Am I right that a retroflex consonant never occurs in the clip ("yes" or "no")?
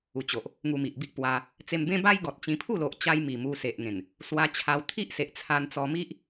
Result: yes